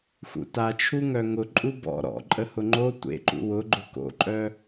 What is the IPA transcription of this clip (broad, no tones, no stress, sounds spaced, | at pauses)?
x ṵ t a t͡ʃʰ u ŋ œ ŋ ʊ ǃʼ u b ɔ̰ ɾ ɔ̰ ǃʼ ə h ʊ ŋ͡ǃ o tʷ ḛ ǃ ṵ w ʊ ɡ͡ǃ ʊ k o̰ ǃʼ œ